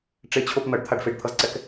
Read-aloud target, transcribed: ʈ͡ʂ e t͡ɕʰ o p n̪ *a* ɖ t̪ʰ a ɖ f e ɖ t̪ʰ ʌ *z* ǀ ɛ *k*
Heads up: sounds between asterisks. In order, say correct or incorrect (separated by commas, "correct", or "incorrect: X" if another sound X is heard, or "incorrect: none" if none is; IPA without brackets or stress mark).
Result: incorrect: ʌ, correct, correct